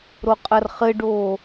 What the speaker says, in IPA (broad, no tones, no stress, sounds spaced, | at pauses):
ɾ o qʼ ɐ r χ ɘ ɖ oː